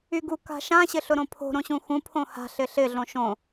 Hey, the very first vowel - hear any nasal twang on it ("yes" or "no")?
no